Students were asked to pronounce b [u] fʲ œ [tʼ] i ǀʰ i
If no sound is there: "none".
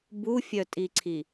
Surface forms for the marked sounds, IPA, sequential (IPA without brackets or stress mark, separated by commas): u, tʼ